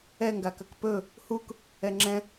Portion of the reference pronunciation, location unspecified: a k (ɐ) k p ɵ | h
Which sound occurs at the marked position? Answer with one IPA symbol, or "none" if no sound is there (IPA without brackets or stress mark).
ɐ